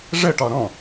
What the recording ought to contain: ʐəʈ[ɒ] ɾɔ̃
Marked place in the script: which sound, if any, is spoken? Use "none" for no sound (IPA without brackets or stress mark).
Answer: ɒ